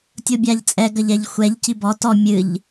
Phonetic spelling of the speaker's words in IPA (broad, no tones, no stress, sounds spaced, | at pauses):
tʲ o bʲ a ʎ t͡sʼ ɛ ɡ ɐ ʎ ɛ ʎ xʷ ɛ ʎ c i b ɔ t ɔ mʲ ɨ ʎ